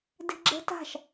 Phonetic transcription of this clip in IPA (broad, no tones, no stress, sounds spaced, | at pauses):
d e̤ ɡ͡ǁ ə̤ t a̤ ʃ